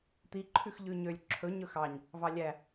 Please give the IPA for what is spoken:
t̪i ǃʰʉxʎʉɲølʲ ǁʰɵ ɲɵxɑɲ | vɑlʲæ

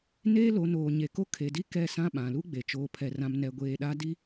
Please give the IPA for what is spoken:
neː˦lo˨˦noː˨ ɲe˨ko˦ kʰe˨di˦ kɛ˦˨sã˦ɓã˨ lu˦ɡ͡be˨ t͡ʃoː˨pʰɛ˨rã˨m nɛ˨ɡʷeː˨ɗa˦ di˦

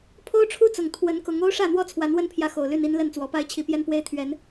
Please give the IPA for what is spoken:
pʰo˦ʊ̯ʈ͡ʂʰu˦t͡sʊ˨˩ŋ t̪ʰwə˨˦nkʊ˨˦ŋ o˦ʊ̯ʂä˥˨ n̪wɔ˥˨t͡sʰwa˨˦nwə˦npʰjä˨˦ xo˨˩ʊ̯ly˥˨ni˦n lə˥˨nt͡swɔ˨˦pa˦ɪ̯ t͡ɕʰi˨˦pjɛ˦npwe˦ɪ̯ t̪ʰɥɛ˨˦n

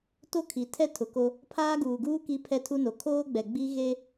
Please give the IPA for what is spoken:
to˦kʰi˨ tʰɛ˦tʰʊ˨ko˦ | pʰaː˦ɡuː˨ɡuː˦ ki˦pʰɛ˦tʰu˦no˨ kʰoː˦ɡ͡bɛ˨ɡ͡bi˦ ɣe˦

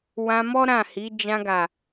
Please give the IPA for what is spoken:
wã˧mɔ˦ ɾã˦˨hi˨˦ d͡ʒã˧ɡa˨

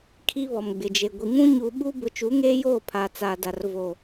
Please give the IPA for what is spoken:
kʰi˦βɔ˨mɡ͡bɪ˨d͡ʒe˨ ɡʷi˨ ŋũ˦ɲuː˨ɓu˦ bʊ˨˦t͡ʃu˨˦ŋeː˦joː˦˨ pʰa˨t͡saː˨da˨r vo˨

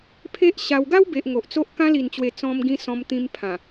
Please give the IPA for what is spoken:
pʰe˦ʔɕa˧w ɡa˦wbe˨ʔ ŋo˨ʔt͡so˦ʔ kã˧li˨˩nt͡ɕwe˨˩ t͡sɔ̃˧mɡĩ˧ sɔ̃˧mt̪ĩ˧mpʰã˨˩

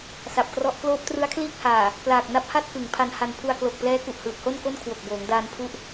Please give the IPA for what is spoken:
sa˨˩p̚krɔ˦˥ʔ kloː˦˥p̚trɯ˦˥a̯kʰliː˥˩k̚haː˨˩ | plaː˨˩k̚ na˦˥p̚ha˥˩t̚ kɯ˩˦ŋpʰa˧nha˧n pʰu˧a̯klo˨˩k̚plɛː˦˥ ku˨˩ʔhɯː˨˩p̚ho˥˩nko˥˩n kʰwo˨˩k̚boː˩˦ŋdaː˧npʰu˦˥ʔ

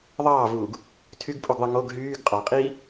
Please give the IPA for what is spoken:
ðˤɑːvuːɡ | tʰyɡpʼuɡðˤɯ ŋoɡ ɦyːɡ qʼɑqʼiː

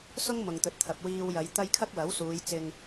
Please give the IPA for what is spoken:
sʊ˥ŋ mʊ˨ŋt̪ɵ˨t̚t̪ʰɐ˨p̚ wiː˧wjɐ˨˧j t̪ɐ˧j kʰɐ˥k̚wɐ˨˥wsuː˨˧j t͡sɪ˨ŋ

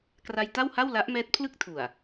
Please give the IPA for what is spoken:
kra˧jta˥˩wha˥˩w la˦˥ʔmɛː˦˥t̚pʰlɯ˥˩k̚tʰu˨˩a̯

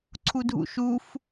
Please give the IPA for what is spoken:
ǀʰudʱṵʃuf

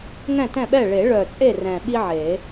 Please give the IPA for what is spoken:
ŋɛ̃˥˨tɛ̃˥˨ɓɛ˥˨ ɭe˨˩˦ɭœ˨˩t͡sʼe˥˨ rɛ̃˨˩ɓi˥ʕe˨˩˦

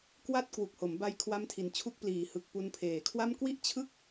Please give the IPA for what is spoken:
kwa˥˩t̚ kwu˨˩k̚ho˩˦mba˧j kʰwa˦˥mtʰi˨˩nt͡ɕʰu˦˥k̚pliː˨˩ hɯ˨˩k̚ pu˧npʰeː˨˩kʰwa˥˩m kwi˥˩ʔt͡ɕʰɯ˥˩k̚

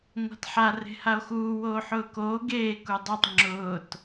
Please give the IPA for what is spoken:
ŋʷa̤tħa re̤hao̯xuː woːħʊːkoː ɡeː kudˤatˤ ŋ͡ǁʊːt

